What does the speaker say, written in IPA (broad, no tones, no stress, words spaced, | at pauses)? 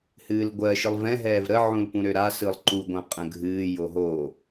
hɨːlɡʷɜ ʃɯlˠvɛ̃ ɦɛːvɾə ʕũlpũɾøɾa sɯlˠǃu ɡʷãqʼə̃ɡʱɨː joɦo